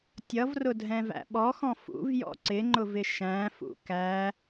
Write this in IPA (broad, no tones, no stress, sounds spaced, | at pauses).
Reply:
tʲ ʌ v r ʊ dʱ ɛ̃ v æ̰ ɓ ɔ x ɔ̃ f ṵ v j ɔ̰ ǀ ɪ ŋ͡ǃ ʊ v ɪ ʃ æ̃ f ṵ k æ